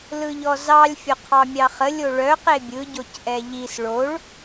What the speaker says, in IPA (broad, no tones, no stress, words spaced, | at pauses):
lɯʎɔzɑlʲ fʲoqʰɑmʲɑχə lʲoɭœ qebʲɯ ɟocʔɛʎis ɭoɭ